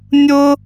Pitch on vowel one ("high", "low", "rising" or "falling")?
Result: high